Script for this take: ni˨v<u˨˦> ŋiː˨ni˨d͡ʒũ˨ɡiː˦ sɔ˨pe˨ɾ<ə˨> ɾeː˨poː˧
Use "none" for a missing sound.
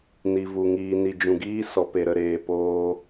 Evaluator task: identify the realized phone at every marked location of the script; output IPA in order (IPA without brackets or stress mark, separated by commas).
u˨, ə˨